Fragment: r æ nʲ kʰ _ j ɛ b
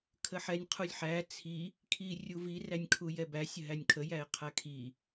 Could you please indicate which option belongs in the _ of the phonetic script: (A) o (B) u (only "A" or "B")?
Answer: B